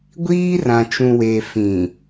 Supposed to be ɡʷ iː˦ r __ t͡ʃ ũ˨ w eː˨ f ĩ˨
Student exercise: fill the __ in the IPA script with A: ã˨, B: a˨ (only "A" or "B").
A